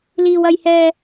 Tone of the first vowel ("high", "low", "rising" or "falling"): high